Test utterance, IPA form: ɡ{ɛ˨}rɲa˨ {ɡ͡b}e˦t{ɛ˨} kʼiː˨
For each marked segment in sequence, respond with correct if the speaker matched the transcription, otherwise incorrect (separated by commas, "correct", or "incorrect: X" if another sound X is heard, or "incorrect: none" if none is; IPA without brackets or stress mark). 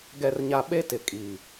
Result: correct, incorrect: ɓ, incorrect: ɪ˨